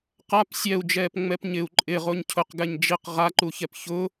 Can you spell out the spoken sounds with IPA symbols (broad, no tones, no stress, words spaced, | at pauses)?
qap sʲɛu̯d͡ʒɛːpŋ͡mɛp ɲɪu̯ ǃʼɪʁoɲ cʰʊqɡɛɲ d͡ʒiq ʁaǃuçɛp çʊ